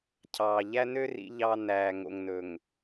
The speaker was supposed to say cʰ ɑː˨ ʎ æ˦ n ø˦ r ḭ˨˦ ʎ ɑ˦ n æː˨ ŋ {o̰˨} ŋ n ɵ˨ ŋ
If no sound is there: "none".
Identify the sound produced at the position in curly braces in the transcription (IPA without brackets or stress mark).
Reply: o̰˨